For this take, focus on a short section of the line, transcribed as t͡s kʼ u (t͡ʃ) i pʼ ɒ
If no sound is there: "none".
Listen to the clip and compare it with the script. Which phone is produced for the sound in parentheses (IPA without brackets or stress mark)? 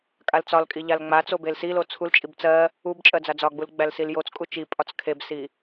t͡ʃ